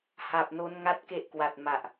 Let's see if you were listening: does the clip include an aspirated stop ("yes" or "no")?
no